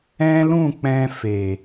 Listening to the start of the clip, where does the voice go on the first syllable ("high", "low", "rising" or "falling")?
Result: high